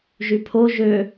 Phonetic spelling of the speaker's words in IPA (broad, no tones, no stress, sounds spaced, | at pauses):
ʒ y pʰ o ʒ ø